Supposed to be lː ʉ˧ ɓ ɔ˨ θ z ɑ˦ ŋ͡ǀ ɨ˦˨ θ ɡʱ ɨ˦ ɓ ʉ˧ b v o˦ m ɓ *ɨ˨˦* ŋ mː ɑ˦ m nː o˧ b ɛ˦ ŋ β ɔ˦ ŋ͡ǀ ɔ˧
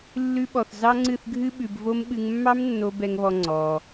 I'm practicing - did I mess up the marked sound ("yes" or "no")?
yes